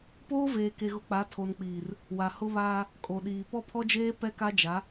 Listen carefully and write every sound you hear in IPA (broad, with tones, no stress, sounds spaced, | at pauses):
p oː˦ v eː˨ k e˨ ɣ ʊ˨ k͡p a˨˦ tʰ o˨ n k͡p iː˨ r | w a˨ h ʊ˦ β aː˦ | kʼ o˨ ɗ iː˨ p ɔ˦ pʰ ɔ˦ d͡ʒ eː˦ p ɛ˦ k a˦ d͡ʒ a˨˦